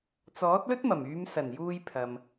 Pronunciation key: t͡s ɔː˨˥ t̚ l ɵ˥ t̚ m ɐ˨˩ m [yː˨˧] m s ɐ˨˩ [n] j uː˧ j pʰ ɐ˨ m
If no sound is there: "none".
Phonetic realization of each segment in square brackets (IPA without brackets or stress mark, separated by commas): yː˨˧, n